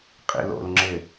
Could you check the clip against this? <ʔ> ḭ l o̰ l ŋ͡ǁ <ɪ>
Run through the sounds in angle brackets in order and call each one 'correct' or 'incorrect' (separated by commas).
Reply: incorrect, correct